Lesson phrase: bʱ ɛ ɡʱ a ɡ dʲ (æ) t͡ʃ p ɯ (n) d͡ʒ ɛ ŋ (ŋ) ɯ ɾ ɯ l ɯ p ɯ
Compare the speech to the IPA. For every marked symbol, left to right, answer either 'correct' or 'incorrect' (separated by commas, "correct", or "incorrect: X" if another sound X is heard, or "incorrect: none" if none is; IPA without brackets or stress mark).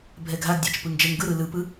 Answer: correct, incorrect: ŋ, incorrect: ɡ